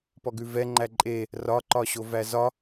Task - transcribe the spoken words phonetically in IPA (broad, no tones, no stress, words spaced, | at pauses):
pɔɡʉvɛŋ͡ǃæ ǃʼe | rɒǃɒɕo væzɒ